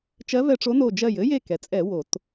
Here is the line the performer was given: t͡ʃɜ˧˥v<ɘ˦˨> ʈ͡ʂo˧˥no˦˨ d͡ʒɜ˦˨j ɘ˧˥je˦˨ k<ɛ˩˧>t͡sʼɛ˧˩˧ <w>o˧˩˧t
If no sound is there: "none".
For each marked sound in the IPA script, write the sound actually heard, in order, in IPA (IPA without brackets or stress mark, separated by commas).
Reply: ɛ˦˨, ɛ˩˧, w